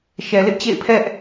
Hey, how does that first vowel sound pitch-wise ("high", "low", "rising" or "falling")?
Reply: low